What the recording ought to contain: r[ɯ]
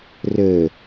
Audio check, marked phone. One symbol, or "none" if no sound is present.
ə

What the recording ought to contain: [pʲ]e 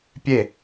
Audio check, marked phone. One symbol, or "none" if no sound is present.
pʲ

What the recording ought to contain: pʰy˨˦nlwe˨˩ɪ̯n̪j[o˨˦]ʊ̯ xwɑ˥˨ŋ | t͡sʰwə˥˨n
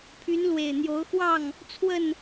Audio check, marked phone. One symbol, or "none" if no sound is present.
o˨˦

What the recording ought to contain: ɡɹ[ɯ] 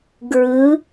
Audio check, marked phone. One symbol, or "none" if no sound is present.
ɯ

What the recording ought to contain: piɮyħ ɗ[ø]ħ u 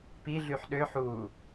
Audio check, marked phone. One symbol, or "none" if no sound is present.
ø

